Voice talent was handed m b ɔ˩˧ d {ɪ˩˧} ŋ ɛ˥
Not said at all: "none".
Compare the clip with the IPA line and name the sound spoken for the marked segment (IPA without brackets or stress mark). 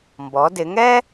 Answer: ɪ˩˧